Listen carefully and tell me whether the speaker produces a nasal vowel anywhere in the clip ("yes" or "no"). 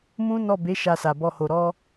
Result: yes